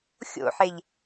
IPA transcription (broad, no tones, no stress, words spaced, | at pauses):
xʲo̰ħeʎ